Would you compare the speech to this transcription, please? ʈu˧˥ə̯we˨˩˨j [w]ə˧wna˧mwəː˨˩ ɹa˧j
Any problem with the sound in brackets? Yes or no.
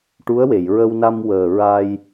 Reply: yes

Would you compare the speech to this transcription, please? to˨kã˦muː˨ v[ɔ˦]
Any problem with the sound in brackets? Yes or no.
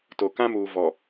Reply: yes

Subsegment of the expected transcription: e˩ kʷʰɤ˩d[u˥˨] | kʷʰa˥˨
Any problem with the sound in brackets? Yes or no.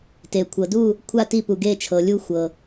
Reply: no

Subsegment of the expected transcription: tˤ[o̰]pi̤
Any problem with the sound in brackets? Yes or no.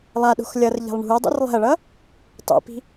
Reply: yes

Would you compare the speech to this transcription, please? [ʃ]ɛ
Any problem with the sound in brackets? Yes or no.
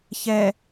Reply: yes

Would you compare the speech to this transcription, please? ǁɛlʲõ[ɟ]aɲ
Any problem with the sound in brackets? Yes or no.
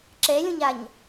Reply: yes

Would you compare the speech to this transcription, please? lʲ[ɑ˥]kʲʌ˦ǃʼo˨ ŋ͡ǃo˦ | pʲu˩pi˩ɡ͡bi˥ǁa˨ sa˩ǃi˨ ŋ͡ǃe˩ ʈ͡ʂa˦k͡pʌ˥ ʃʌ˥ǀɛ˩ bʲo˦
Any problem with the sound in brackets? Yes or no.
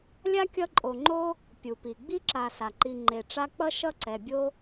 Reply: yes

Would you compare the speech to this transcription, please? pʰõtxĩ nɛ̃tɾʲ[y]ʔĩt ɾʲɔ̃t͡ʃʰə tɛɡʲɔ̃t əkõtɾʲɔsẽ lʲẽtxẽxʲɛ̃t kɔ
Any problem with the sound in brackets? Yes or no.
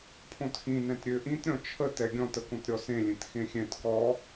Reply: yes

